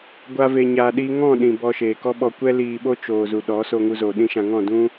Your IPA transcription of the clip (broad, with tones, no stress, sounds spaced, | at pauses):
ɡʷ a˦ v e˧ ɲ aː˧ ɗ iː˦ ŋ ɔ̃˦˨ ɗ ĩ˨ b ɔ˧ ʃ eː˨ k ɔ˦ ɓ ɔ˧ kʷ ɛ˦ l iː˧ ɓ o˦ t͡ʃ oː˨ z u˨ ɗ ɔ˨˦ s oː˧ ŋ u˧ z oː˨ ɗ ĩ˦ ʃ ã˧ ŋ ɔ̃˦˨ d ũ˦